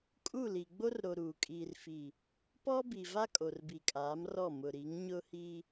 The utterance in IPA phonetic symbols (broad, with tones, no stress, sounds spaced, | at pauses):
kʼ u˦˨ l i˨ ɡ͡b o˦ r ɾ o˨ ɾ uː˨ kʼ iː˨ r f i˨ | p ɔ˦ b i˨ v a˦ kʼ o˨ r b i˨ kʼ aː˨˦ m r ɔ˦˨ m ʊ˨ ɾ i˨˦ ŋ ɲ ʊ˦ h i˦